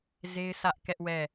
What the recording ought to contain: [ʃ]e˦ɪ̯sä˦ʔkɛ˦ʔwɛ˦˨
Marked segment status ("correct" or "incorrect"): incorrect